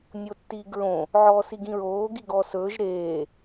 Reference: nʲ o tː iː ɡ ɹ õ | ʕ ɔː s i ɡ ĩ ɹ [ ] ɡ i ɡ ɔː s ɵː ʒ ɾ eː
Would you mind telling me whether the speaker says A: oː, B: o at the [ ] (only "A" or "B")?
A